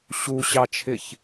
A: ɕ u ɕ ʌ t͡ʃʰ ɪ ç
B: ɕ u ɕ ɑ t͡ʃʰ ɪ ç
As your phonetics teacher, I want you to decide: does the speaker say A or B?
B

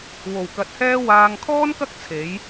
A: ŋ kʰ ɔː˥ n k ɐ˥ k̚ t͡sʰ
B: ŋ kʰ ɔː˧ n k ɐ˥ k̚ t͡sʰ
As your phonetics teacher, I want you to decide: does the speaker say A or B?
A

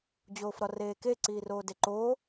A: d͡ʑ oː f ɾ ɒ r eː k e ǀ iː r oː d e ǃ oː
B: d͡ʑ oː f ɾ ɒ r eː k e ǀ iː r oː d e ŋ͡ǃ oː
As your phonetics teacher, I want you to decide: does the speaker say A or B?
A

